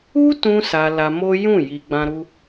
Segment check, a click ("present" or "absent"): absent